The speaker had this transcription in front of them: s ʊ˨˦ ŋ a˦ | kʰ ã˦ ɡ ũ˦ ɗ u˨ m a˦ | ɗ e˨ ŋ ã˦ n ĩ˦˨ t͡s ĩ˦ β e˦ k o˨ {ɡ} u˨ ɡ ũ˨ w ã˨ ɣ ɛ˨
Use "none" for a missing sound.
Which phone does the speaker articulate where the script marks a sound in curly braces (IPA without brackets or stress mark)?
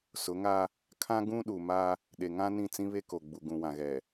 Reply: ɡ͡b